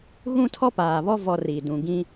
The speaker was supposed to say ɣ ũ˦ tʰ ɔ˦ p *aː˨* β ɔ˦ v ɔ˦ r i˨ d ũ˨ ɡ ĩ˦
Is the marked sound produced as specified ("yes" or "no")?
yes